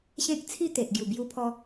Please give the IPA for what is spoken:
ɕẽ˦k̚t͡sʰi˥˧ t̪e˨ʔɡju˨˩bju˧pʰɔ˧

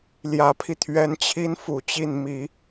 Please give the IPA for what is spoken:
ljä˧˥pʰi˧t̪ʰɥɛ˧˥nt͡ɕʰi˥n fu˨˩t͡ɕi˥˩n mi˨˩˦

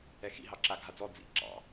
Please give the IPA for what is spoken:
ɛxḭ ɦɑǁa ɡʱad͡zɔ d͡zḭ ǁɑ̰

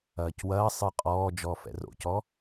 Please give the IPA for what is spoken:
ɐːcwɐːsˤɨ qʼɔː d͡ʒɔːfɛ̰ro̰cɔ

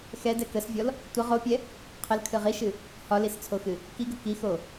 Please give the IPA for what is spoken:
xɛdɛ kəsvʲɔl | tʷə ʁopʲɛ | qʰəlkʰɨ ʁiʃɨ | hɒlist͡sʰoxɨ | kiɡə kixo

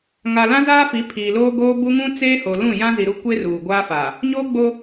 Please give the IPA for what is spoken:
ŋa˨lã˦zaː˦fi˨˦ pʰiː˨loː˦ɡoː˦ bu˦ŋũ˦ t͡seː˦ho˨lũ˦˨ jã˦zi˨ɾu˦kʷe˦ ruː˨ ɡʷaː˦fa˨ | ɲoː˦ ɡ͡bo˦

